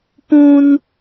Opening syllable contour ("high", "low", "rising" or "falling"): high